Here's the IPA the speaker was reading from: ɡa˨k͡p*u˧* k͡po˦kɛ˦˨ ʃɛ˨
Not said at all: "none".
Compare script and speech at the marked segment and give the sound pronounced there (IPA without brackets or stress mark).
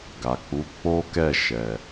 u˨˦